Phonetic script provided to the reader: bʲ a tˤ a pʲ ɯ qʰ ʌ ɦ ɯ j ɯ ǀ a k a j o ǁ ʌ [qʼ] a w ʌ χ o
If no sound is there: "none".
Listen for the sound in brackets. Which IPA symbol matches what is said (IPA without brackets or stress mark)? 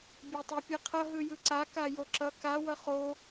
k